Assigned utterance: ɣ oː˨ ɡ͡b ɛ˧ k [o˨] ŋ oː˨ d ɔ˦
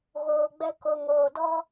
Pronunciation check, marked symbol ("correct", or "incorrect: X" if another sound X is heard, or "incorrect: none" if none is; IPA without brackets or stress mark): correct